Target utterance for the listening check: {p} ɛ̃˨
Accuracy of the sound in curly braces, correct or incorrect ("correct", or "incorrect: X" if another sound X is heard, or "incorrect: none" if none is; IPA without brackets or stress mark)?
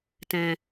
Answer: incorrect: t